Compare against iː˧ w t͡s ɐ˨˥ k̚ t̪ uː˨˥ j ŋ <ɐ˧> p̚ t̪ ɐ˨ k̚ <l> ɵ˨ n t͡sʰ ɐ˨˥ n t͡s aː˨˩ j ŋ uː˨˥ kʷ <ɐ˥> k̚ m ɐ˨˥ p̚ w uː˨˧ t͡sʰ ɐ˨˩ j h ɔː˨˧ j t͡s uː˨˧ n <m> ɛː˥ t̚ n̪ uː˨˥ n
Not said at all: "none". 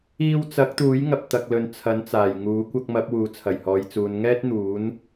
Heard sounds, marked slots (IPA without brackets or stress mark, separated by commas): ɐ˨, l, ɐ˧, ŋ